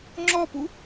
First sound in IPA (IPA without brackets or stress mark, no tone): ŋ͡ǁ